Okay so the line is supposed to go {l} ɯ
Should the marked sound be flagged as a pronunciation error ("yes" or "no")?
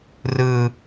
yes